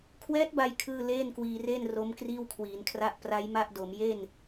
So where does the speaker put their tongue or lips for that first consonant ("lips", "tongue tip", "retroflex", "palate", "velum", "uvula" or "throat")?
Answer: velum